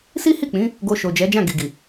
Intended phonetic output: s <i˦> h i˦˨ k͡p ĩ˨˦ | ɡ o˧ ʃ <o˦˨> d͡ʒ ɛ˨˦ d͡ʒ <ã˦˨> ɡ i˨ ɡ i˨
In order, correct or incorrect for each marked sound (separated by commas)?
correct, incorrect, correct